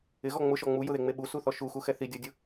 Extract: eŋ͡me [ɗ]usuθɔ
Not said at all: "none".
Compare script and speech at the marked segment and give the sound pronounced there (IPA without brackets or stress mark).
ɓ